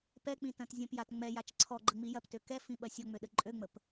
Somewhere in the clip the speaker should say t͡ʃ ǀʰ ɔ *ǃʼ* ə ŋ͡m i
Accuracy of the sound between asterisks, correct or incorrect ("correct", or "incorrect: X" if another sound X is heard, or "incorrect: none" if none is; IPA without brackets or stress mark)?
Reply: incorrect: ɡ͡ǃ